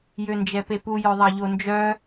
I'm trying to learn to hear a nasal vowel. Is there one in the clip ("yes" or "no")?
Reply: no